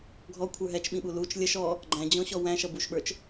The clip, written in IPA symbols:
ɡʱ ɔ kʷʰ ə˞ ɦ ɛ t͡ʃ ɓ ĩ ɓ u l u t͡ʃ lʲ ə ʃ ɔ | ɡ͡ǃ æ̃ d͡ʑ ɔ̃ ɕ ɔ w æ̃ ʃ ʌ b u ʃ ɓ ə˞ t͡ʃ

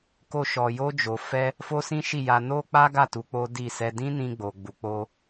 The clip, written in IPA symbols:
k o˧ ʃ ɔ˨ j o˧ d͡ʒ o˨ f ɛ˧ | f o˦ s ĩ˦ ʃ i˦˨ j a˧ n o˦ k͡p a˦ ɡ a˦˨ t u˧ k͡p o˦ d i˦˨ s ɛ˧ d ĩ˦ n ĩ˧ ɡ͡b o˨ ɡ͡b u˨ k͡p o˧

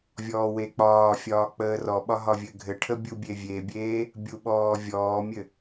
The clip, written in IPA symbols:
vʲ ɔː w e k͡p ɒː fʲ ɒː k͡p əː r ɔ ɓ ɒ ɦ ɒ vʲ ɘ ɡʱ ɘ ʈʰ ə bʲ u bʲ e vʲ e bʲ eː | bʲ u ɓ ɔː vʲ ɔː mʲ ɘ

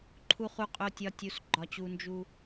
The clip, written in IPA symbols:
ǃʰ u˦ χ u˦ qʼ o˦ tʲ ɒ˦ tʲ u˨ s ɡ͡ǃ ɒ˦ t͡ɕ u˦ n d͡ʒ u˦

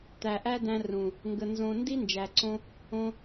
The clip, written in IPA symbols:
t̪ æ˨ ʔ æ˦ d æ̃˧ r ũ˨ | ŋ ɡ ə˧ n z õ˧ n d i˦ n d͡ʒ æ˨ ǀ õ˦ | õ˦

